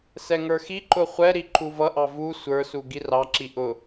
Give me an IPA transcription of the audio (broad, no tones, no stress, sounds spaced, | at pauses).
s ɛ ŋ ə˞ x i ǃ ʊ χʷ ɛ ɾ i ǃ u v ʌ ʔ ɑ v u sʷ ə˞ s u ɡ i r ɑ ǁ i ʔ ʊ